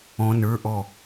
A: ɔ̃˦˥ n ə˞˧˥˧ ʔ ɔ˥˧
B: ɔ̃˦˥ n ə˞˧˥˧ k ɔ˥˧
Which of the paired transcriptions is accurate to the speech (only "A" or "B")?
A